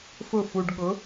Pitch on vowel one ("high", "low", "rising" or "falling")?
falling